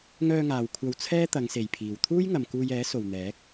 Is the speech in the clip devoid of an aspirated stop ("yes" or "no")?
no